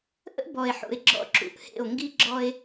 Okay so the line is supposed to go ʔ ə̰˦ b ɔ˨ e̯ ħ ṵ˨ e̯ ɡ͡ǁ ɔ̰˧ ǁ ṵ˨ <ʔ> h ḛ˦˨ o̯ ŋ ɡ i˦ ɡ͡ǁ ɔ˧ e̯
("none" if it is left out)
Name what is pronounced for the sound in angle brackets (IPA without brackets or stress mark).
ʔ